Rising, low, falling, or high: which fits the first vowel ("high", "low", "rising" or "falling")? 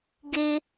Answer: low